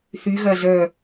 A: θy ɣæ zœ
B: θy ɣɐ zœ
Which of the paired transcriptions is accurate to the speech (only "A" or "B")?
B